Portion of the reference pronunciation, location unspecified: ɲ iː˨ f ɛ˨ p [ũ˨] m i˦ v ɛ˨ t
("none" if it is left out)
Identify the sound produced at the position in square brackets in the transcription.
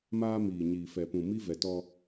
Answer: ũ˨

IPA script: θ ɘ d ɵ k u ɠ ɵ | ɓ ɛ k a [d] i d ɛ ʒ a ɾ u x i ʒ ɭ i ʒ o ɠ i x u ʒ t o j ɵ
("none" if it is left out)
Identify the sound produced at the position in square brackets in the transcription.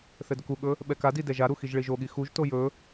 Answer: d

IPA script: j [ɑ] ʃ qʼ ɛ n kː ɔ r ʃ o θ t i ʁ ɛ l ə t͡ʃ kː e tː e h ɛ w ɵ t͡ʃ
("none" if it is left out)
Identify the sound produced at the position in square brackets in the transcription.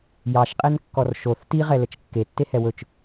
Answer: ɑ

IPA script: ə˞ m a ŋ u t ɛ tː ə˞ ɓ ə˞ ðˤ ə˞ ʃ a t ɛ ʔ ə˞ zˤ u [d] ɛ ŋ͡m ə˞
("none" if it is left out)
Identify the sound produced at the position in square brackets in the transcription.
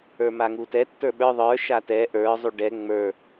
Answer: ɖ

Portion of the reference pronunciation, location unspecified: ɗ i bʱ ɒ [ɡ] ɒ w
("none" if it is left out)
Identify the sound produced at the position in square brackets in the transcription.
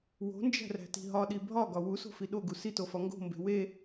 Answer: ɡ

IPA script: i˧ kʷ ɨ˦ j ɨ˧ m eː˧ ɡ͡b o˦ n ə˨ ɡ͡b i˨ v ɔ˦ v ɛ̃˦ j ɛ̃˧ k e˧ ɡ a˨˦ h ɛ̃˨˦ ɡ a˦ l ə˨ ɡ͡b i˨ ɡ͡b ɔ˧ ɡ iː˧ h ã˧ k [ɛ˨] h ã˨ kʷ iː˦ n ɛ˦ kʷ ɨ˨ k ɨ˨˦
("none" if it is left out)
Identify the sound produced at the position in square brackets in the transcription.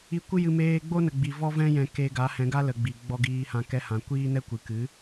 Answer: ɛ˧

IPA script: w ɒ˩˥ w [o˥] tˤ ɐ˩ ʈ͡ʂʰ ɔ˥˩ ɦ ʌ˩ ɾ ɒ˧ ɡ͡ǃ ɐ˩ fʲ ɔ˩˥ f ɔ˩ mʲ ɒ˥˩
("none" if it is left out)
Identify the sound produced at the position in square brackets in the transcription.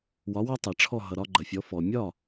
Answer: ɔ˥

